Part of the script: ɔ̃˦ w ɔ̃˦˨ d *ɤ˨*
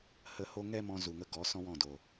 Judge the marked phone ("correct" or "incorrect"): incorrect